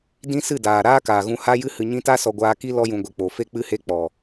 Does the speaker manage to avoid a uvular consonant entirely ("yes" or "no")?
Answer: yes